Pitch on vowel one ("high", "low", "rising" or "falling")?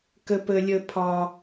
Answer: high